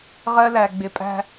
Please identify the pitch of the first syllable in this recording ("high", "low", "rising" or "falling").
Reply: high